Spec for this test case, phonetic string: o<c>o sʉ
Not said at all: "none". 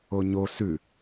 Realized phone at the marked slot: ɲ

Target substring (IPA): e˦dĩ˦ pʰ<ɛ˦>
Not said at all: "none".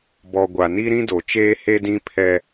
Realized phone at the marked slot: ɛ˦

